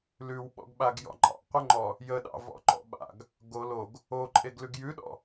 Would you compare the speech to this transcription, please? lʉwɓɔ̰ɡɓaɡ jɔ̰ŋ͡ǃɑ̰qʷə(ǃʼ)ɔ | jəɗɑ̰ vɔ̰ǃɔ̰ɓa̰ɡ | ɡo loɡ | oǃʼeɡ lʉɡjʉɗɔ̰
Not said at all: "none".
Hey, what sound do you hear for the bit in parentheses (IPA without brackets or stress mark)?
ŋ͡ǃ